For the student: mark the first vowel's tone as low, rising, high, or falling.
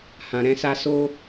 low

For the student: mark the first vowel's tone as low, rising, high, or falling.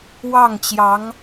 falling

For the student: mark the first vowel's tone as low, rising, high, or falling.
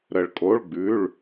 low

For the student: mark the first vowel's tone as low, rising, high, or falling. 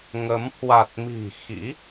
rising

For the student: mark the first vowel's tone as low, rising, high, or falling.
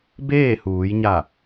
falling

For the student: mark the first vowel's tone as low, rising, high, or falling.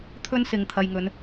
high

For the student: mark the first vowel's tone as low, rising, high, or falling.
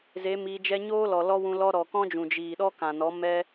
rising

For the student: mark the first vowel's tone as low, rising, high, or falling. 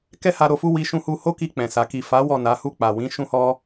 high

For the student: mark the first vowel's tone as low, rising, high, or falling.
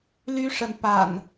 high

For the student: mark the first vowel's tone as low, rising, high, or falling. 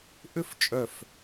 falling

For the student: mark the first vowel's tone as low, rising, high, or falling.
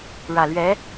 low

